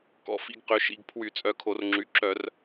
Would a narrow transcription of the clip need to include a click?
yes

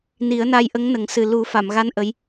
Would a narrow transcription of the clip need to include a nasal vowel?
no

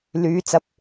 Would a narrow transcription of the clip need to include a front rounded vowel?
yes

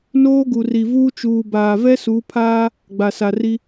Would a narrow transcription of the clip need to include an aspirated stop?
yes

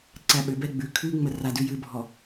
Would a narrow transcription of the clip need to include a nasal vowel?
no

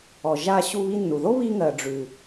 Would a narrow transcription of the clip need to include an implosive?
no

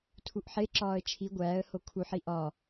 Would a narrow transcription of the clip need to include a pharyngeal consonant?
yes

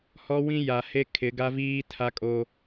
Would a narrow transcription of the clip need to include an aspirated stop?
yes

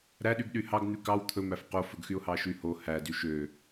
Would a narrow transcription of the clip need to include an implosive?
yes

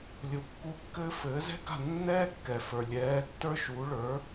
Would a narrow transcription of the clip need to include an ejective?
no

